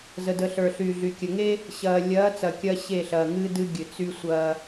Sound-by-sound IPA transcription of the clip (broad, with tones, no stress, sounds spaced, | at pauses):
z ə˨ d ə˨ ɬ ə˞˨ ɬ y˨ ɮ y˨ kʲ ə˨ ŋ e˦ | ɕ ɐː˨ lʲ ɐː˨˦ t͡s ɐ˨ kʲ ɐː˦ ɕ e˦˨ ɬ ɐː˨ ŋ ɨː˦ d ɨ˦ ɡʲ ɨ˨ t͡s y˦ sʷ ɐː˦